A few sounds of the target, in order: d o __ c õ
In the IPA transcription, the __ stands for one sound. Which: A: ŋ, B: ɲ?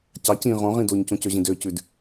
B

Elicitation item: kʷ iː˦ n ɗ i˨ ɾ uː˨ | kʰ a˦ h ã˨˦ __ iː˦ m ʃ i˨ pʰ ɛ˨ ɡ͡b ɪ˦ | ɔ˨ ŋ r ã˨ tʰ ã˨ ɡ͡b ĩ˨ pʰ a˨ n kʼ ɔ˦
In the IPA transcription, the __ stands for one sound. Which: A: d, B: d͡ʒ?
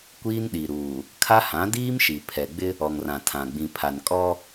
A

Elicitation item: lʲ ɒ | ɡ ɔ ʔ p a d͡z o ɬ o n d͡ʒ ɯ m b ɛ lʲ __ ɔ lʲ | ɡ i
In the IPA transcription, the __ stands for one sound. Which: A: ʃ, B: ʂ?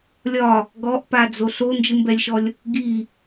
A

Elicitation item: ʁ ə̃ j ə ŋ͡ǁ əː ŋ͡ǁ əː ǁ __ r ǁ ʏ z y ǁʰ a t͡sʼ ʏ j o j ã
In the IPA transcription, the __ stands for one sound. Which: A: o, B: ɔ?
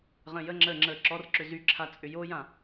B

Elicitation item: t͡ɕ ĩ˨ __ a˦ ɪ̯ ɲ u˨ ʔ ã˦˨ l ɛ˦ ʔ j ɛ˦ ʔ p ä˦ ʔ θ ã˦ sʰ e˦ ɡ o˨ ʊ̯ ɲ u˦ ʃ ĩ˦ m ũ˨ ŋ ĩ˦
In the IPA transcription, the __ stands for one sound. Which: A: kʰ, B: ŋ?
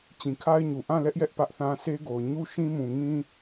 A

